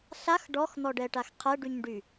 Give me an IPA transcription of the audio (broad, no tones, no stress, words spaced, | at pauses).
ɬax ɖɔxn̪ɔɖɛʈax qʰɛɖyɲɖy